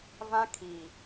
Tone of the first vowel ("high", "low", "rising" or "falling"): high